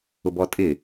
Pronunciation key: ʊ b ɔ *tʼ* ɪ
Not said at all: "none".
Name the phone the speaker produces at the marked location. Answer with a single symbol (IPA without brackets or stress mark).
tʼ